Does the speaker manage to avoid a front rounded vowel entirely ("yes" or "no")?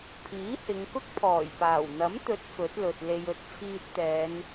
yes